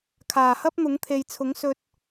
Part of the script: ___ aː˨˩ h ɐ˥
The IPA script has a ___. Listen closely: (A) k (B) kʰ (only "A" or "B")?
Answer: B